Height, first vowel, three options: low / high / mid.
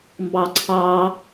low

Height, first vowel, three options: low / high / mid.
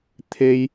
mid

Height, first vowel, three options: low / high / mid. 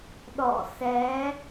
mid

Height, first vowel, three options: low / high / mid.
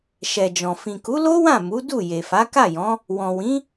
mid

